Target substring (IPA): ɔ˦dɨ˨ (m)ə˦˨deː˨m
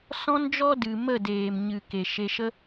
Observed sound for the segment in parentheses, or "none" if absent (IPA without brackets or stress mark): m